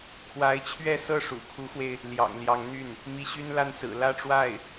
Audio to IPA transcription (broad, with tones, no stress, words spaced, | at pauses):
kʰwa˧˥ɪ̯t͡ɕʰɥɛ˥˧sɤ˥˩ ʂṵ˨˩kʰu˧˥xwe˧ɪ̯ | ljɑ̰˨˩ŋljɑ˧˥ŋn̪y˥˩n | mi˧˥ɕy˥nla˥˩n sɹ̩˨˩ lä˥˧ʈ͡ʂwa˥˩ɪ̯